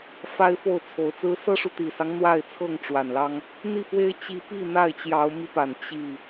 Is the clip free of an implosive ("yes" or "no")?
yes